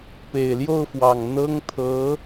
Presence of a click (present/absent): absent